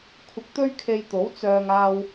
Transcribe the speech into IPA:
kʷʰɪ˧k̚t̪ɵ˥ɥkʰe˧jt̪o˨˥w t͡sœː˧ŋaː˧w

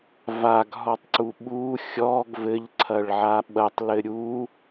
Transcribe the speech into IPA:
vaɡɦɔtˤǀu ɓu xʲɔɡ vɘʎǀʰɐɭʕa ɓɐtˤlɘ ɾʲu

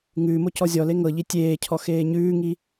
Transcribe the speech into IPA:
ŋʉːmo cɔzʲɔle ŋɤʎi tʲeːcʰɔ xeːɲʉːŋi

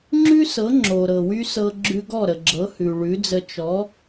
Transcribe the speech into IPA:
ŋ͡ǁʉ˥sɤ˩˥ ŋ͡ǁo˩ɾɤ˩wy˥ sɤ˧ ɡ͡ǁʉ˧ɡɔ˥˩ɾə˩ɡ͡ǁɤ˩˥ hʉ˩ ɭʉ˩˥d͡zə˧ t͡ʃɔ˩˥

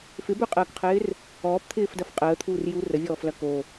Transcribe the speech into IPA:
fɪbøqʼəːkqʰɪːr | ɔːpt̪ʰɪːfdɐf qʼəːt̪ʰuːr jur əvʲɔːflɐ ko

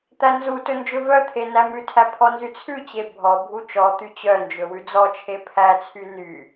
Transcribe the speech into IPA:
t̪ænzutɵ nd͡ʒɵvœt̪ʰe næmʉtʰæ pʰɔnzyt͡sʰʉt͡ɕe bʱɔbʱu t͡ʃɔt̪y t͡ɕœnd͡ʒɵ wʉd͡zɔt͡ʃʰe pʰæt͡sʰy ny

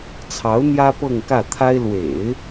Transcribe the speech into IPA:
t͡sʰɑ˧˥ʊ̯ n̪jä˥pɤ˥˧ŋkä˥˩t̪ʰa˥ɪ̯ lwḛ˨˩˦ɪ̯

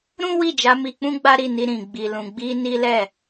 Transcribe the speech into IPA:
ɾũ˦wi˦˨d͡ʒa˨˦ mi˧k͡pũ˦ɡ͡ba˦ ɾi˦˨ni˧ ɾĩ˨ ɡ͡bi˨lũ˨ɡ͡bi˧ ni˦ lɛ˦˨

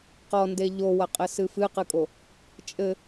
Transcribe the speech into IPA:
qɔnde ʎowɐqʼɘsɨ fɨqɨkʼo | t͡ʃʼɘ

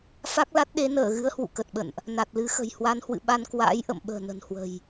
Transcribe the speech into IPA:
fa˦˥k̚la˦˥t̚ɗe˨˦ nəː˧˩ɣɨ˨˦ə̯ hwṵ˧˨kə˨˩t̚ɓə̰˧˨nʔ | na˨˩t̚lɨ˨˦xə̤˨˩j hwa˨˦nhwɨ̰˧˨ɓa˧n kwa̰ː˧˥j ʔə̰˧˨mɓə̤ː˨˩ nə̤˨˩nhwə̤˨˩j

